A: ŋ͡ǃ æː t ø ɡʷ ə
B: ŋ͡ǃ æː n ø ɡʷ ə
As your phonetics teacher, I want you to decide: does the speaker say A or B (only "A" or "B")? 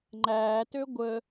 A